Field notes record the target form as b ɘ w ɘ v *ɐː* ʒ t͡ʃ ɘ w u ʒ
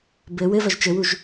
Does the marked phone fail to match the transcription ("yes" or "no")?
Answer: yes